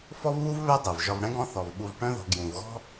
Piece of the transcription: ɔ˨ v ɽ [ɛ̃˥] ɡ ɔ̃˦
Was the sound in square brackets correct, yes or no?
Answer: yes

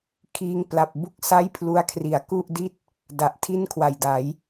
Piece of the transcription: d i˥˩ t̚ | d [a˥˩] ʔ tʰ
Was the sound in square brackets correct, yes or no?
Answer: no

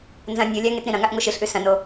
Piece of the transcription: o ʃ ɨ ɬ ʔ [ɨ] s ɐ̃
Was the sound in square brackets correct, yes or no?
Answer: no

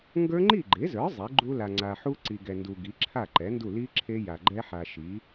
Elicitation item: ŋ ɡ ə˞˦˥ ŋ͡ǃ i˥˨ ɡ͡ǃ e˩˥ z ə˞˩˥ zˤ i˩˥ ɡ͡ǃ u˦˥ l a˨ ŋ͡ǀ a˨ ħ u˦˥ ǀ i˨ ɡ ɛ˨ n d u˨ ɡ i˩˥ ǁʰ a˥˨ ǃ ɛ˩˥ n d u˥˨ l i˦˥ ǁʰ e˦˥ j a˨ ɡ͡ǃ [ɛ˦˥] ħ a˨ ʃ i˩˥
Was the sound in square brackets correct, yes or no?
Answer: yes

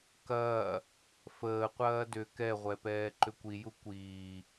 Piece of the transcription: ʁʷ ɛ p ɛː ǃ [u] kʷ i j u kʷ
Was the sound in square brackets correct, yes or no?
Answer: no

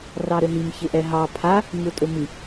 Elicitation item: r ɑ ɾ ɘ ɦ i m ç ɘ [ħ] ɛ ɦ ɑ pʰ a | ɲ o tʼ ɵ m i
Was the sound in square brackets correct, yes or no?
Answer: no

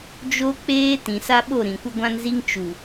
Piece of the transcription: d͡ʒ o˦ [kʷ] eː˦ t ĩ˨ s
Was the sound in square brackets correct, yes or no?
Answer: no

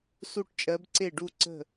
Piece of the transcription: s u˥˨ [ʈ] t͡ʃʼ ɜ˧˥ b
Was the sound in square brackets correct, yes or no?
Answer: yes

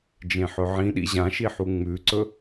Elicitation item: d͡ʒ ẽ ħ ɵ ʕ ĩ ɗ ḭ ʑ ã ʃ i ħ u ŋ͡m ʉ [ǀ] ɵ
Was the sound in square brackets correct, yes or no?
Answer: yes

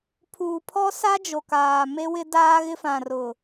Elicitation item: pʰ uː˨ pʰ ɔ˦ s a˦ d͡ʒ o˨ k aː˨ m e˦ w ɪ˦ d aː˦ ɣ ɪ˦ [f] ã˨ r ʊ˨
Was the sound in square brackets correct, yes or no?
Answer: yes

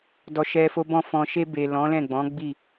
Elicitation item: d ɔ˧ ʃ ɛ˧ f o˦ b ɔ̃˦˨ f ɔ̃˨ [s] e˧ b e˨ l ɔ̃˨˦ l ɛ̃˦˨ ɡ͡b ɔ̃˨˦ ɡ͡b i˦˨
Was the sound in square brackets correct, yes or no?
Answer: no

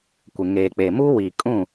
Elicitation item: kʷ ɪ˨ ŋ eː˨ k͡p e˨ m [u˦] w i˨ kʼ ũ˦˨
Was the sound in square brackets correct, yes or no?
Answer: yes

